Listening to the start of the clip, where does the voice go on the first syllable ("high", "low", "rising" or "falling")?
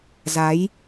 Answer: rising